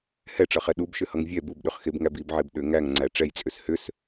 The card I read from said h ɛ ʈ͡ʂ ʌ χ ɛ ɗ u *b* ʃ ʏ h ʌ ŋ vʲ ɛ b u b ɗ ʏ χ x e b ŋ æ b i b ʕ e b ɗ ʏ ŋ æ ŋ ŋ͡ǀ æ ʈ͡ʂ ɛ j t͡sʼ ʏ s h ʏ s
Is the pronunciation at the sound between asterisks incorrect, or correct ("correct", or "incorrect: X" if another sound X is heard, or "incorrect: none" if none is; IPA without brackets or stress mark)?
correct